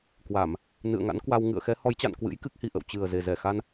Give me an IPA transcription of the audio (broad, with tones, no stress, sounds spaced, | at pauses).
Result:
k w a˧˩˨ m | n ɨ̰˧˨ ə̯ ŋ a̰˧˥ n k w a˧ w ŋ ɨ̰˧˨ ə̯ x ɛ˨˦ h ɔ˨˦ j t͡ɕ a̰˧˨ n k w ɨ̰˧˥ j k ɨ˦˥ k̚ h i˨˩ ʔ ə̰˧˨ w t͡ɕ ɨ˨˩ ə̯ z e˨˩ z ɛ˧˩ x a˧ n